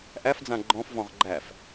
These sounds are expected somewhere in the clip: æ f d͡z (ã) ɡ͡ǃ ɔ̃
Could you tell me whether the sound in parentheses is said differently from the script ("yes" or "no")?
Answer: no